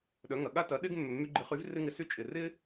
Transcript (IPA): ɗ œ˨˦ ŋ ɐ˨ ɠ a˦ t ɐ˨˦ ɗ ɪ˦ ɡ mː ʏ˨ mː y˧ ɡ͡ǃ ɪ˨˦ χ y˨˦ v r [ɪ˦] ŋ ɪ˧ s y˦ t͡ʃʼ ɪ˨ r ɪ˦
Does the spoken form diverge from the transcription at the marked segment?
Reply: no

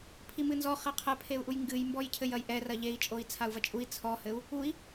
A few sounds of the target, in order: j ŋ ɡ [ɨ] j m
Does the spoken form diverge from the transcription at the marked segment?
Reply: no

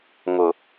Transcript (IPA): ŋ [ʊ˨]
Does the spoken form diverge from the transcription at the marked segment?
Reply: no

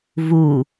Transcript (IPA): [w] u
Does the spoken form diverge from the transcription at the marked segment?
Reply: yes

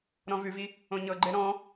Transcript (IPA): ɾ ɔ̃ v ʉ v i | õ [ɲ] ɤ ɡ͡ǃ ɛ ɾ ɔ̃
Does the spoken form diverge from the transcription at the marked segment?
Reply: no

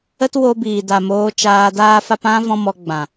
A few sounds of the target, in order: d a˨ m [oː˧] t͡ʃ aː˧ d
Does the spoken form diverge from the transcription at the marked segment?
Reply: no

